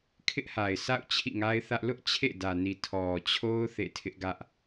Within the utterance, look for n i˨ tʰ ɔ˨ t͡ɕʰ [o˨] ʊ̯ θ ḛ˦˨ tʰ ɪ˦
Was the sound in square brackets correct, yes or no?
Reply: no